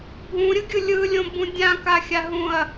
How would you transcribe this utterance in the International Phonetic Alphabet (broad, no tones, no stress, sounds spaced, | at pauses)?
bʱ ũ ɾʲ ɯ ɡʲ ɯ lʲ ɯ lʲ õ b ũ dʲ ã k a xʲ a ɦ ũ ɐ̯